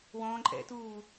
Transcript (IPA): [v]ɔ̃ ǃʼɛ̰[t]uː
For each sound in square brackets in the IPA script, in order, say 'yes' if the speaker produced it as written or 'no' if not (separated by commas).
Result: no, yes